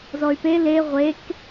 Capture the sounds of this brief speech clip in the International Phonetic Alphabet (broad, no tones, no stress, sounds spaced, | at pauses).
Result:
z ɔ y̯ p e l e ʁʷ e k